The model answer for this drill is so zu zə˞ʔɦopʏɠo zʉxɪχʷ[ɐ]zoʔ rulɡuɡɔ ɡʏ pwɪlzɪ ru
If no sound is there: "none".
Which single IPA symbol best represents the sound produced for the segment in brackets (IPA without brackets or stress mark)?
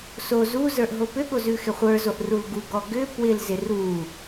ə˞